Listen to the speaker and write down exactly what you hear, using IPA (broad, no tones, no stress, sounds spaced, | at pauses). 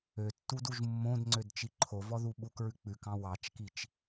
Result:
ø tː u d u ʒ mː õ d ŋ͡ǀ ø d t͡ʃ i ǃʰ o v ɔ ð u ɓ u k ɹ ʉ k͡p ʉ k ɑ̃ w ɑ t͡ʃ k i t͡ʃ